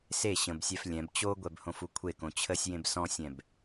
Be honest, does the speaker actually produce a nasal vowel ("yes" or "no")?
yes